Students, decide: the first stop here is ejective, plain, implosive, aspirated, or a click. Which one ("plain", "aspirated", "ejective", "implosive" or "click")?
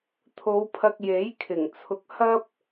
aspirated